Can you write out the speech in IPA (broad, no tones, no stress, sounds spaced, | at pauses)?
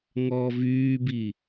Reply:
ŋ ɔː v yː b i